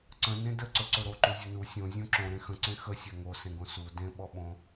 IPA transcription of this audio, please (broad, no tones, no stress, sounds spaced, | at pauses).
ǀ ə̃ n ẽ d ə ǀ ɵ ǀ ɵ ɾ o ǃ u zʲ ə n u sʲ õ zʲ õ ǁ õ ɾ ẽ x ə̃ ǀ ẽ x ə sʲ a ŋ o s ẽ ɡ õ s u d ẽ ɓ ɔ ɓ õ